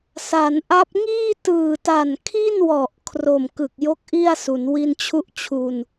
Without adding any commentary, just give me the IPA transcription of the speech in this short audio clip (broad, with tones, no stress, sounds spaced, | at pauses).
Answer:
s a˩˦ n ʔ a˦˥ p̚ ŋ iː˥˩ t ɯː˨˩ t a˨˩ n kʰ i˥˩ n w ɔ˨˩ ʔ kʰ r o˨˩ m k ɯ˨˩ k̚ j o˥˩ k̚ ʔ i˥˩ a̯ s u˩˦ n w i˧ n t͡ɕʰ u˦˥ ʔ t͡ɕʰ u˧ n